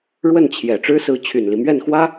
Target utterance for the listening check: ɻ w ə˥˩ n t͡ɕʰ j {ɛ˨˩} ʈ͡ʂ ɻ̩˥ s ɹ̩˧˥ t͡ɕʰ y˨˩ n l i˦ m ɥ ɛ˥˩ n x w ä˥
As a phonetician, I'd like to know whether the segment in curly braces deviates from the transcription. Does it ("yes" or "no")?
no